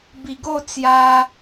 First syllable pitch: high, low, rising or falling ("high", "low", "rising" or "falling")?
low